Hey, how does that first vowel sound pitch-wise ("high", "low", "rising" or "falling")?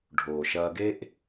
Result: low